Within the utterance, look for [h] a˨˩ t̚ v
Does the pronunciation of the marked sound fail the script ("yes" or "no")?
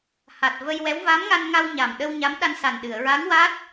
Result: no